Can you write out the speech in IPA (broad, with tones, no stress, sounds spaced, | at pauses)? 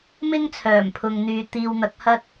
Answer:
m ɪ˥ ŋ t͡sʰ œː˨˩ m pʰ ʊ˨ ŋ n̪ yː˨ t̪ iː˧ w n̪ ɐ˨˥ k̚ h ɐ˥ t̚